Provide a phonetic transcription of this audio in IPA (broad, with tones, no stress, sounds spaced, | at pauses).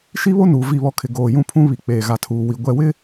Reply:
ʃ i˦ β o˦ n uː˨ v i˦˨ β ɔ˦ kʰ ɪ˨ ɡ oː˨ j ũ˦ pʰ ũ˦ β i˨ k͡p eː˨ ɣ a˨ tʰ uː˨ w i˨ ɡʷ ɛ˨ w ɪ˦